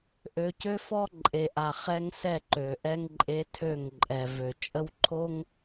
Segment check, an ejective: present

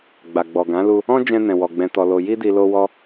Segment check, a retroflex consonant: absent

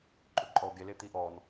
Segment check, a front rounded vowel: absent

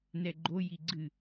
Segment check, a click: present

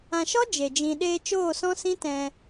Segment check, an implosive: present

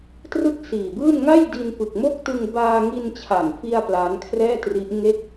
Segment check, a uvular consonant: absent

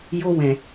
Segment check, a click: absent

